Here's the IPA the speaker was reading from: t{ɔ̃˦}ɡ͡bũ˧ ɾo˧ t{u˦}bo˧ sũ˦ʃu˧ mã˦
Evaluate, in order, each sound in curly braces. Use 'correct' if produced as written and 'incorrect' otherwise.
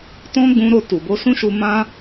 correct, incorrect

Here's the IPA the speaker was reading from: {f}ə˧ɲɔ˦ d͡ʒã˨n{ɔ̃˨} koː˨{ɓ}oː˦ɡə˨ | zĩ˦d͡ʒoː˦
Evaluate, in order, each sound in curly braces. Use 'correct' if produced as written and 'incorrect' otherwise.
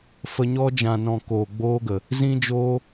correct, correct, incorrect

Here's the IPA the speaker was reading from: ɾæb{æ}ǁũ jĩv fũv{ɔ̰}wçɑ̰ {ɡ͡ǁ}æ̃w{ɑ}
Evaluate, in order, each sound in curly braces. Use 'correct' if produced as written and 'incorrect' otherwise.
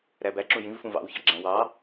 correct, incorrect, correct, correct

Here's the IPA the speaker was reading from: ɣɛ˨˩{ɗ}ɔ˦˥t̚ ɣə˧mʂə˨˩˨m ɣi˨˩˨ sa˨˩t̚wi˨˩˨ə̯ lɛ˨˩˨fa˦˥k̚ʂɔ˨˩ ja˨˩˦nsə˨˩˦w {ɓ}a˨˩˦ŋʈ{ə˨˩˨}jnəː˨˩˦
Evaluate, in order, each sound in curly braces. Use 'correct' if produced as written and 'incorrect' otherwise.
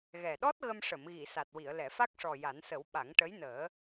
correct, correct, incorrect

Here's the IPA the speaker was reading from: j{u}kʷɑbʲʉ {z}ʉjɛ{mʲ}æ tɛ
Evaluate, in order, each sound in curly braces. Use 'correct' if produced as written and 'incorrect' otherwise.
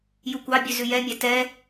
correct, correct, correct

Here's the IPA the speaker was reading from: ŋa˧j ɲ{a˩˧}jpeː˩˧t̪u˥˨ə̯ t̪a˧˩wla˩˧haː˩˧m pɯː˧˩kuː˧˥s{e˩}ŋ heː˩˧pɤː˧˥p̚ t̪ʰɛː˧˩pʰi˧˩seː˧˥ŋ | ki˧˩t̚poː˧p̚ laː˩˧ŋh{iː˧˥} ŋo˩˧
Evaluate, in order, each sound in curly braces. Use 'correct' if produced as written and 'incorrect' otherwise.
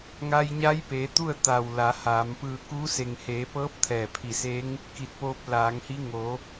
incorrect, correct, incorrect

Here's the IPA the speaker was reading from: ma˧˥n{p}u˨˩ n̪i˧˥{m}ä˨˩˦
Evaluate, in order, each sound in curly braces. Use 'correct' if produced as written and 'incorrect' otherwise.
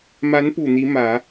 correct, correct

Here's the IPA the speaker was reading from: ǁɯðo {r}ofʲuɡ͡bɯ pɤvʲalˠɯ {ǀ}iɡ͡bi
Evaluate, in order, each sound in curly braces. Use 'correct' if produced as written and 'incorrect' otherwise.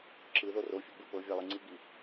correct, incorrect

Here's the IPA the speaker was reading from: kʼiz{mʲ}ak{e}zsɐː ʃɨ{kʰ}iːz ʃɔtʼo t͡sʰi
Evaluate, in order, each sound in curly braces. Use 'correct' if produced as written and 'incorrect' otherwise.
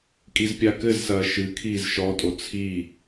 incorrect, incorrect, correct

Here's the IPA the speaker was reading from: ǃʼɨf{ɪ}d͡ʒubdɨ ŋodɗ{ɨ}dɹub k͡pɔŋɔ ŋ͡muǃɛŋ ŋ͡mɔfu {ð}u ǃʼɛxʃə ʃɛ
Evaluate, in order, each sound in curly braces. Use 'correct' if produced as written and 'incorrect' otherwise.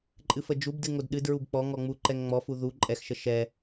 incorrect, correct, correct

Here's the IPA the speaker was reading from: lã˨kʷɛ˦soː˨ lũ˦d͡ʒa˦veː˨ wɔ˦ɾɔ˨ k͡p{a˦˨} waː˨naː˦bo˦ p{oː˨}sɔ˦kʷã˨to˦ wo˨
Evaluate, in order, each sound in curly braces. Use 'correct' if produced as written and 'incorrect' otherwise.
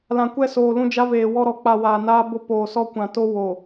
incorrect, correct

